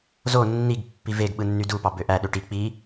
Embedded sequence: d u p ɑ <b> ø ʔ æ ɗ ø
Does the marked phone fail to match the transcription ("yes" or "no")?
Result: no